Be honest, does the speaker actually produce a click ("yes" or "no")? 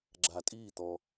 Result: yes